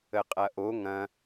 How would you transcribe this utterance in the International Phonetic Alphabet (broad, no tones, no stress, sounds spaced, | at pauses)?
ə qʼ ɐ ʔ o ŋ ɐ̃